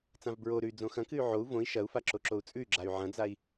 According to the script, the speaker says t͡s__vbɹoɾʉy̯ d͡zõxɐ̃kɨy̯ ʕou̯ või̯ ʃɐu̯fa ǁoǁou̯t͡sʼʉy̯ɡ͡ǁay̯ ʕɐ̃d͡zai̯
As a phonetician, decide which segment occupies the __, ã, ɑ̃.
ã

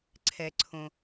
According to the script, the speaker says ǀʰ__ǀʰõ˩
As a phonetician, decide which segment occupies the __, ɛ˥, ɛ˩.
ɛ˩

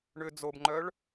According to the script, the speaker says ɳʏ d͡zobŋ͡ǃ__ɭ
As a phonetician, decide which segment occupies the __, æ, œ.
œ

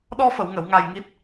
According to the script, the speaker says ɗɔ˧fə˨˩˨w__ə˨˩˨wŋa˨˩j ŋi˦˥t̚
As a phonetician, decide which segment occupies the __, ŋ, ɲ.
ŋ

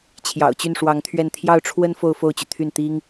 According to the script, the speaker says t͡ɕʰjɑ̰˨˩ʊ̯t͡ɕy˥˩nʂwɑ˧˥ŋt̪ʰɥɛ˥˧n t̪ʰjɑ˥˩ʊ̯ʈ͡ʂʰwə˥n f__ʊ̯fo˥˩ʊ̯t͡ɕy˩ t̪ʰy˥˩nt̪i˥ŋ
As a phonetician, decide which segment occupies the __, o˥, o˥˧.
o˥˧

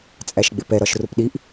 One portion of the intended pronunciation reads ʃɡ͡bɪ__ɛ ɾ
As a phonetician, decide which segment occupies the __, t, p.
p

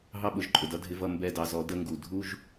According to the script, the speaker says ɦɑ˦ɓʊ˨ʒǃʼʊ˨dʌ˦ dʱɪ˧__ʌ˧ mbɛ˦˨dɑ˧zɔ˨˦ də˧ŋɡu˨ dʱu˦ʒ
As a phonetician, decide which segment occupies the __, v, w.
v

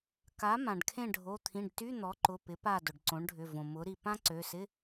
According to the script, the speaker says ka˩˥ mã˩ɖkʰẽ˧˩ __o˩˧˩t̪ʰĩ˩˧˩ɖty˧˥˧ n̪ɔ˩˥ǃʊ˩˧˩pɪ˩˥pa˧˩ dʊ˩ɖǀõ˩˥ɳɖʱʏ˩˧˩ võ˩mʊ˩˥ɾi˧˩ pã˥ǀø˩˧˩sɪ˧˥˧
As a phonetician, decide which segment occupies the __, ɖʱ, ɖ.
ɖʱ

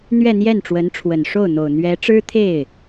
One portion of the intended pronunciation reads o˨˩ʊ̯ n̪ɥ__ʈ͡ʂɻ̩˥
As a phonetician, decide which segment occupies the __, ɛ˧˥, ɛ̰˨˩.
ɛ˧˥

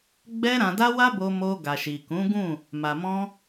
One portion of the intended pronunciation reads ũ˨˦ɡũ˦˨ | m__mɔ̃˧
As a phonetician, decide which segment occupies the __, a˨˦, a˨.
a˨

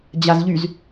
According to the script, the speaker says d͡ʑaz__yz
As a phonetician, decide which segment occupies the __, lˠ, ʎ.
ʎ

